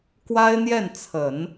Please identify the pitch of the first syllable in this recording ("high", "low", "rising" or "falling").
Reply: high